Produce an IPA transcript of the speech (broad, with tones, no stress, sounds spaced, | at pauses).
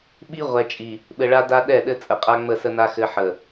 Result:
ɓ i˦ ʁʷ ɛ˨ t͡ʃʼ i˨ | ɓ ɘ˨ ɭ a˦ d a˦ ɗ ɛ˦˨ ɗ ɘ˦ t͡sʼ ə˨ qʼ a˦ ŋ͡m ə˦˨ s ə˦ n a˦ x ɘ˦ ħ ə˨